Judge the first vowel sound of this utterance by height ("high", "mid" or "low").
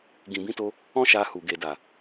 high